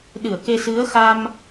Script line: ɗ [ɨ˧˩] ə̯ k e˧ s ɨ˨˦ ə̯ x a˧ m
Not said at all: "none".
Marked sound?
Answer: ɨ˧˩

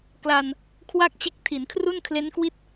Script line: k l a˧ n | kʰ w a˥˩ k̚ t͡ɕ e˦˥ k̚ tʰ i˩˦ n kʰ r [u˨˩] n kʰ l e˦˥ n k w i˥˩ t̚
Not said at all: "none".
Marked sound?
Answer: u˥˩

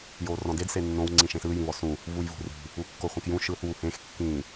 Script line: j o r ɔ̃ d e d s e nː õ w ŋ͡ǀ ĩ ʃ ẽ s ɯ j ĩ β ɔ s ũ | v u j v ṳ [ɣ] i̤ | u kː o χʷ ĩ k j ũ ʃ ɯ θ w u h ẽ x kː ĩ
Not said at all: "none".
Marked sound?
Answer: r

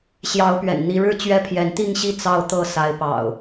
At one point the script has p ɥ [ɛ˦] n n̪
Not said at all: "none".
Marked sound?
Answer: ɛ̰˨˩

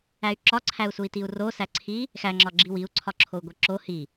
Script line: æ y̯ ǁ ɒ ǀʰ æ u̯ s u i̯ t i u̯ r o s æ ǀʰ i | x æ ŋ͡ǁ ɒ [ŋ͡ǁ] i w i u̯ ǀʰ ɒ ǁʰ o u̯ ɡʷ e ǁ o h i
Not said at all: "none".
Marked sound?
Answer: ɡ͡ǁ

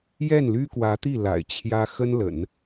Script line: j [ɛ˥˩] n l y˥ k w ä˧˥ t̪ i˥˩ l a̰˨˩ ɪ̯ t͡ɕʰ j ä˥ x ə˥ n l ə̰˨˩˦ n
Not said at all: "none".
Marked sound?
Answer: ɛ˥˩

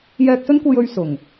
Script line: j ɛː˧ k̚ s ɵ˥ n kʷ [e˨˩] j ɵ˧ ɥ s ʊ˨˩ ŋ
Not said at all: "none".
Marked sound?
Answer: e˧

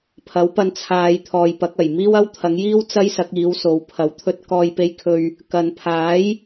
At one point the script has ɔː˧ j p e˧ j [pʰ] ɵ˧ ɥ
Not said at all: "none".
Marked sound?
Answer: kʰ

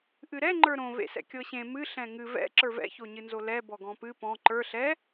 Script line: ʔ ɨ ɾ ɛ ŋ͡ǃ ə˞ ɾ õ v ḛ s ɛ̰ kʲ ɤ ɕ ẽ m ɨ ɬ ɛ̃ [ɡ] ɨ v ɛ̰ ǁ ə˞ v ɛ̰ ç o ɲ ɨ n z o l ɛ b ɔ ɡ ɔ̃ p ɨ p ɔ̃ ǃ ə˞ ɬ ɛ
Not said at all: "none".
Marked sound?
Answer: ŋ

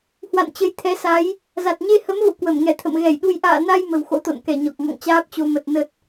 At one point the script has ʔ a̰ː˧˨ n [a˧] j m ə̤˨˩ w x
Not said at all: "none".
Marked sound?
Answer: a˧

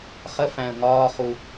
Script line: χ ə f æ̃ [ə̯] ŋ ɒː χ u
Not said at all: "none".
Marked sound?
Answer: ə̯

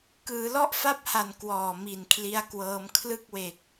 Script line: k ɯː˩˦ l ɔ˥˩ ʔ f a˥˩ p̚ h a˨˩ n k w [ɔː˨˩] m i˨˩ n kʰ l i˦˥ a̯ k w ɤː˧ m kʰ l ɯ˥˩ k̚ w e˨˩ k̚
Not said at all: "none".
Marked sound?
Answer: ɔː˨˩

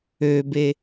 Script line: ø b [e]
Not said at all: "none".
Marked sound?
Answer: e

